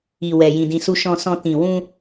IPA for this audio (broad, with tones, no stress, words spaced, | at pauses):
i˨wɛ˨ jĩ˧dĩ˧ su˧ʃɔ̃˧sɔ̃˧ tĩ˨wũ˧